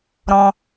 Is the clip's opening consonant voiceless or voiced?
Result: voiced